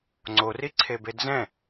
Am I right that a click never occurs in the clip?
no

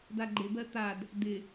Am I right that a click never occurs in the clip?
no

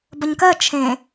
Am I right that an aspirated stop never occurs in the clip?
no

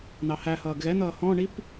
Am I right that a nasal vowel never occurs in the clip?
no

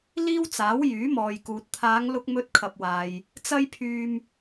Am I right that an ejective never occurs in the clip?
yes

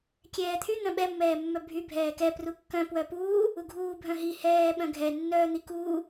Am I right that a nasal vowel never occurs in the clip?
no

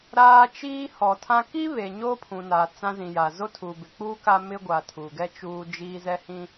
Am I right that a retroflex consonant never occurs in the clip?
yes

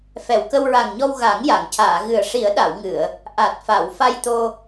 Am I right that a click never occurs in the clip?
yes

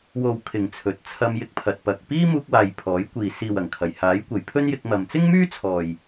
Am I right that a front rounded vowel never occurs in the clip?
no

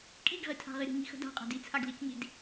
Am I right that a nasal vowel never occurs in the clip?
yes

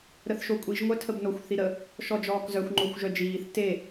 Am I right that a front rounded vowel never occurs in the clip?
no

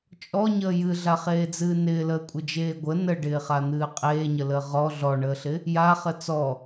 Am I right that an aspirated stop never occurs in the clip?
yes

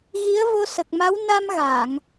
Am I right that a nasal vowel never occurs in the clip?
yes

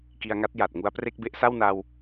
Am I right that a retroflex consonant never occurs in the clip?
yes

